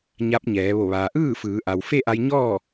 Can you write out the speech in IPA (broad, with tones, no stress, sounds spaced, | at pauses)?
ɲ a˧˥ p̚ ɲ ɛː˩˧ ʋ o˧˩ ʋ aː˩ ʔ ɯː˥˨ f ɯː˩˧ ʔ a˩ w f e˥˨ ʔ a˧ j ɲ ɔː˥˨